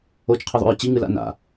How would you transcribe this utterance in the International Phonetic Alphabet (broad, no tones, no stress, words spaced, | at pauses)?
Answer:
ot͡ʃqʰeðˤṵɹ t͡ɕiŋɨla̰ na̰